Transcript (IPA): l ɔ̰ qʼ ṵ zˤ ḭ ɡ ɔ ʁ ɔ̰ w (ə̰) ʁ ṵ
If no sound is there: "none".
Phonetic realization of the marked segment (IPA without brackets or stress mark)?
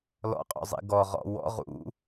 ɔ̰